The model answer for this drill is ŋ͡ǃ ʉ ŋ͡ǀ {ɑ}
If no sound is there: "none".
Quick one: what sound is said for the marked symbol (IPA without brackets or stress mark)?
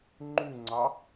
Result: ɑ